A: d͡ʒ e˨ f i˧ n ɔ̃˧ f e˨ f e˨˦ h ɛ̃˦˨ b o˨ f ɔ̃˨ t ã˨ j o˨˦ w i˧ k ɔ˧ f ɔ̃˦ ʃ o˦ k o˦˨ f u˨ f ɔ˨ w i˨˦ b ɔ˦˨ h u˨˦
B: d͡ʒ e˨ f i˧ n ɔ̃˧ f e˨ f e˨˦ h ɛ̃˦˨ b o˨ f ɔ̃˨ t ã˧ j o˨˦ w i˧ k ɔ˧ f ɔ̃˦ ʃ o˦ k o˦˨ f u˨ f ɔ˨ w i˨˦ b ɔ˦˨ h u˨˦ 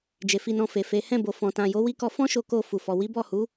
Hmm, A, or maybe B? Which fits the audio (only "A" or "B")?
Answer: A